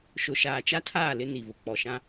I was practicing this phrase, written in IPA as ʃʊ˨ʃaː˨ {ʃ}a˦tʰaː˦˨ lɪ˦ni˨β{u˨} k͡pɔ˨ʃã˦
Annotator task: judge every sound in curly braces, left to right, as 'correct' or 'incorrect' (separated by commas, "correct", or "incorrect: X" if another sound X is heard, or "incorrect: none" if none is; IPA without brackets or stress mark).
incorrect: t͡ʃ, incorrect: ʊ˨